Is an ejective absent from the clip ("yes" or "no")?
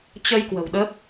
yes